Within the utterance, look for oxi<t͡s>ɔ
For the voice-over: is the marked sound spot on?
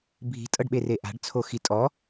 no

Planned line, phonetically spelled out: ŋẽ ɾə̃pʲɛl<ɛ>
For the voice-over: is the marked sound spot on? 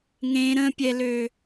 no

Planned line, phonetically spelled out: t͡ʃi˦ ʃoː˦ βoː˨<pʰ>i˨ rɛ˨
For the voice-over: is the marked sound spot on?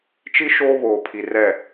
yes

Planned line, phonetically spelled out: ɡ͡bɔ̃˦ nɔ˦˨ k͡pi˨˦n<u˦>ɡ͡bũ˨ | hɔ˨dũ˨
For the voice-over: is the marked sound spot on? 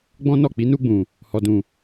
no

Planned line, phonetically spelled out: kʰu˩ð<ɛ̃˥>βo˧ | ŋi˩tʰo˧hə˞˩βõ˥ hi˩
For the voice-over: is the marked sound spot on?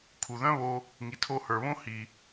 no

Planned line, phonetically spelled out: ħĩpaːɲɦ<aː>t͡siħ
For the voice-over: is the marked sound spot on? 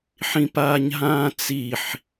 no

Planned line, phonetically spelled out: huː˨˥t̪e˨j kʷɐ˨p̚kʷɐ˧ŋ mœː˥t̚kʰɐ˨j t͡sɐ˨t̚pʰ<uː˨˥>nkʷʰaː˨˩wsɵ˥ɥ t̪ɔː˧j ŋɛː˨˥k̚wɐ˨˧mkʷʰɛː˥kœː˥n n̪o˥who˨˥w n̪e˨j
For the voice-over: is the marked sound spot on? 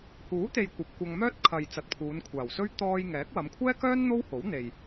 no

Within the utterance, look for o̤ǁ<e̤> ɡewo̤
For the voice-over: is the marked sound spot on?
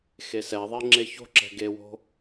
no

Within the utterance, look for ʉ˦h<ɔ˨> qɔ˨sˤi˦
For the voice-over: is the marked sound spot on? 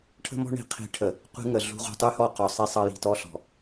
no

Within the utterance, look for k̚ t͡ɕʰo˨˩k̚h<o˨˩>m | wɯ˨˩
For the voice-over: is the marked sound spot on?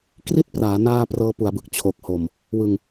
yes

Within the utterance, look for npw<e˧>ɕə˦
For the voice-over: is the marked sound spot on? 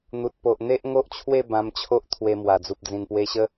yes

